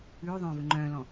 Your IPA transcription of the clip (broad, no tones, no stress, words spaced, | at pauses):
ʉː ðˤœ̃ːvɵŋ͡ǃœ̃ːlɔ̃